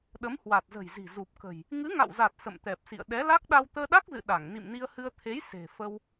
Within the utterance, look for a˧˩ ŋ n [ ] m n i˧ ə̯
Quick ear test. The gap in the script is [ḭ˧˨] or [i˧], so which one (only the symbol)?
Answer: ḭ˧˨